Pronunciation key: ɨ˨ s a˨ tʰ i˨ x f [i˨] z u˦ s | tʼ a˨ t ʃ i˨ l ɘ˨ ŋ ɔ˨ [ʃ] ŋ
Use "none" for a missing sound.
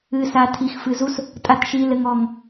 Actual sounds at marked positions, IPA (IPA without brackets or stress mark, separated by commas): ɨ˨, none